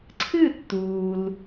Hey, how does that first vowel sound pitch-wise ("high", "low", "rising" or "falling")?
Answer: falling